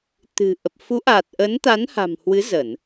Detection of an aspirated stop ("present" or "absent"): absent